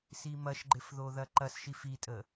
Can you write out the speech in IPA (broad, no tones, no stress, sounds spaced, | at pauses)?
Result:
s i m ɐ ʃ ɡ͡ǃ ɪ f ð o ð ɐ ǃ ɐ s ʃ i f i tʼ ə